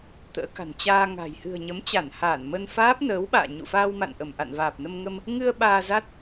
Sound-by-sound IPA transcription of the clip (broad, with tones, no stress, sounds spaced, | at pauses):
t̪ ə̰ː˧˥ k a̤˨˩ n t͡ɕ aː˧ ŋ a̤˨˩ j h ɨ̤˨˩ ə̯ ɲ ə˨˦ m t͡ɕ a˧˩ n h aː˧˩ n m ə˧ n f aː˦˥ p̚ n əː˨˦ w ɓ a̰ː˧˨ ɲ ṵ˧˨ f aː˧ w m a̰˧˨ n ʔ ə˧˩ m ʔ a̰˧˨ n v aː˨˩ p̚ n ə˧ m ŋ ə˧ m | ŋ ɨ˧ ə̯ ɓ aː˧ z a˦˥ t̚